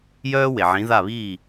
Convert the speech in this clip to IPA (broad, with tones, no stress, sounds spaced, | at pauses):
j œː˥ w e˩ ʕ ĩ˩˥ ð a˥˩ β iː˥˩